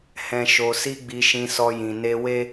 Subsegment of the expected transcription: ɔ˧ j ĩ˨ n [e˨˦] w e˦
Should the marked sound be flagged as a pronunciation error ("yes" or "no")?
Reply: yes